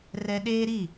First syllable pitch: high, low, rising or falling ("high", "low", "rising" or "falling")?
high